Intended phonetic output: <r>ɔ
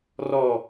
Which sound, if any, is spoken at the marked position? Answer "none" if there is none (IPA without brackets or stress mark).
r